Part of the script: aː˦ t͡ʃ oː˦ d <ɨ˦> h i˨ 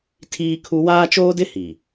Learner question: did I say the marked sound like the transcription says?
no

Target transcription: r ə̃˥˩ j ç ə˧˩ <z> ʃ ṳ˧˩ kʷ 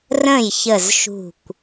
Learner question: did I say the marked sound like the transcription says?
yes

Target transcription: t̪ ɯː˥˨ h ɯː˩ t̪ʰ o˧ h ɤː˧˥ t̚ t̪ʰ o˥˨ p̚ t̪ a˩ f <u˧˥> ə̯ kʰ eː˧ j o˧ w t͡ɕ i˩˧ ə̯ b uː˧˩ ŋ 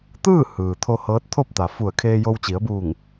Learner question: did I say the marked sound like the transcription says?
no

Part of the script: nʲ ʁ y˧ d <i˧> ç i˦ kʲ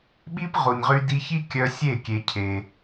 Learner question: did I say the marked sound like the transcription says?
yes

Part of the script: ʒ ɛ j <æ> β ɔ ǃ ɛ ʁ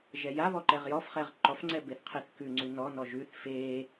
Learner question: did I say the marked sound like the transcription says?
no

